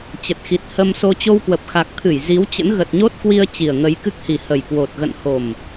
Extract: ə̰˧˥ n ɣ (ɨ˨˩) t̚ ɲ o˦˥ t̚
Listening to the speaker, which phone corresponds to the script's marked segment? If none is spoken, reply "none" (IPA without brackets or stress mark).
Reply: ə˨˩